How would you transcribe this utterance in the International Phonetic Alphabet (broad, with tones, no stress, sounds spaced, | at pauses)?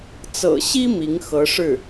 t͡s ɤ̰˨˩ ɕ i˥ m i˧˥ ŋ x ɤ˧˥ ʂ ɻ̩˥˩